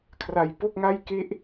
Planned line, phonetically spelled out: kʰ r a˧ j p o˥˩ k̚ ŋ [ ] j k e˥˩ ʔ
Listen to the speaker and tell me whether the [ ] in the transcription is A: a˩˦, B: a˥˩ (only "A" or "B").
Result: B